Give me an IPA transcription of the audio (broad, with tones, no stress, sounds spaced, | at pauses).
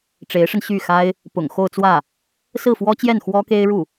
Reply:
ʈ͡ʂ e˧˥ ɪ̯ ʂ ə˧ n ɕ y˥˩ x a˥ ɪ̯ | p ʊ̰˨˩ ŋ x o˥˧ ʊ̯ t͡s w ä˥˩ | s ɹ̩˥˩ f w ɔ˥ t͡ɕ j ɛ˥˩ n x w ɔ˥ k e˥ ɪ̯ ɻ u˥˩